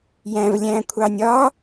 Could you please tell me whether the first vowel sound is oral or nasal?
nasal